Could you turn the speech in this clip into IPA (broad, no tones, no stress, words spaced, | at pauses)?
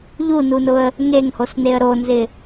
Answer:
ʎununʊə̯ | ŋeŋhosneə̯ ɾonzɪ